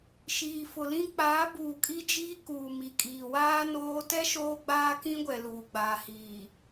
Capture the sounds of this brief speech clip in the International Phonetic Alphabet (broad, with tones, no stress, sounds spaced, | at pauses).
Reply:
ʃ iː˨ f ʊ˨ l ĩ˦ k͡p aː˨˦ b uː˨ kʼ i˦ d͡ʒ iː˦ k uː˨ m i˨ kʼ iː˨ w aː˦ n oː˦ t ɛ˦ ʃ oː˦ ɡ͡b aː˦ k ĩ˦ ɡʷ ɛ˨ l uː˨ ɡ͡b aː˨ h iː˨